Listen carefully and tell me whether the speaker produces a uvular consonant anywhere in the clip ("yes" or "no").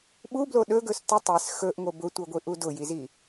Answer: no